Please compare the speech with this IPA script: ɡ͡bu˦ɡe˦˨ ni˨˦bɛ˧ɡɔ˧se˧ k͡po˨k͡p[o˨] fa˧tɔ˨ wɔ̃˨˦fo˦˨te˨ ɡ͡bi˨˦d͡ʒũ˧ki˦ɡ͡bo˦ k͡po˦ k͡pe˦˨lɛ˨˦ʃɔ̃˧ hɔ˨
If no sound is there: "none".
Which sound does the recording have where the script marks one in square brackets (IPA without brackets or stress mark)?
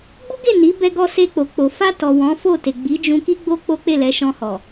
o˨